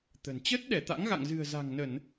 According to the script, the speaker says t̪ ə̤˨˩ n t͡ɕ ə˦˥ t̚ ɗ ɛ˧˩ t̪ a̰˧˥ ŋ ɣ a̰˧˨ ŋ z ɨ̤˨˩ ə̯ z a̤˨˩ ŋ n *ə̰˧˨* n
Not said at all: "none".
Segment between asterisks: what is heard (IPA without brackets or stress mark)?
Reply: ə˧˩˨